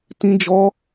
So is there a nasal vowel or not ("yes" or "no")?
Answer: yes